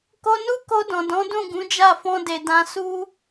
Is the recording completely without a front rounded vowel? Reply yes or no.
yes